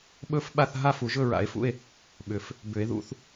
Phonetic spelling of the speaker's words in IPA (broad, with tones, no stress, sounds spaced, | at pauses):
ɓ ɵ˥˨ f ɓ a˥˨ θ ɦ a˥˨ f u˨˩˦ ʒ ɵ˥˨ ɹ a̰˨˩˦ e̯ f ṵ˥˨ e̯ | ɓ ʏ˨˩˦ f | b ʏ˨˩˦ e̯ ð ṵ˥˨ θ